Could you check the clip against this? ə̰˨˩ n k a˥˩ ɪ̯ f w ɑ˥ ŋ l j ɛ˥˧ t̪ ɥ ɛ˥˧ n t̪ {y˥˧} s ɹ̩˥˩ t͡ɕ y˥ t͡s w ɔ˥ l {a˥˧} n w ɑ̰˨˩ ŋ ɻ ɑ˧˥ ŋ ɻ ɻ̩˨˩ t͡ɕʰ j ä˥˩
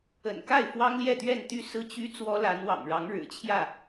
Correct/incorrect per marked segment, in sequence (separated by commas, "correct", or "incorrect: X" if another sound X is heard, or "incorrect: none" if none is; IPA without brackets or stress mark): correct, incorrect: a˧˥